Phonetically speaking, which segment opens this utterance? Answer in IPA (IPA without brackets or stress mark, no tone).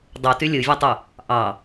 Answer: dˤ